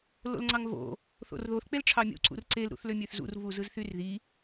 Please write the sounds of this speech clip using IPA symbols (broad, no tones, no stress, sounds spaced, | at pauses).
l o̰ l ŋ͡ǀ ɑ ŋ v o̰ | θ o̰ r ð o θ k͡p e l ʈ͡ʂʰ ɑ mʲ ṵ ǀ ṵ r ǀ e l ɾ ṵ θ l ø mʲ ø θ z ṵ r v u z ɯ z θ y r ð i